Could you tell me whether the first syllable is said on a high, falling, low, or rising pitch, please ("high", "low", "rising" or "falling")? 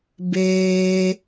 high